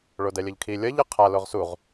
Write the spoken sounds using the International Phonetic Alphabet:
ɭodɛlʲʌʎkʰi lʲʌʎ ɯqʰa loʁsuʁ

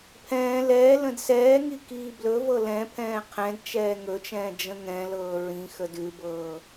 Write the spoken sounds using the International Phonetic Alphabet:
pʰɛ̃ː lɛː lə̃dsɛːŋi kiːblɵvɤ lɛ̃pʰɛ̃ː qʰɛ̃dt͡ʃɛː ŋɵt͡ʃɛ̃ː d͡ʒə̃ŋɛ̃lɤː ɹĩ xədʉbɤː

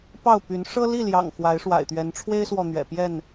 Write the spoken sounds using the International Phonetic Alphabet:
pɑ˥˨ʊ̯py˨˦n ʂɤ˦li˥˨ljɑ̰˨˩ŋ xwa˨˦ɪ̯ʂwa̰˨˩ɪ̯t̪ɥɛ˨˦n ʈ͡ʂʰwe˦ɪ̯swɔ˨ n̪ɥɛ̰˨˩pjɛ˥˨n

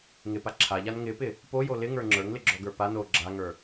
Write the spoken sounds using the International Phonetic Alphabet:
ŋɪpa ǁʰaʎan ŋɪpɪ | pojo lɪŋə˞ ŋ͡ǁə˞ŋlɪɡ͡ǁɔɡə˞ pan o ɡ͡ǁaŋə˞

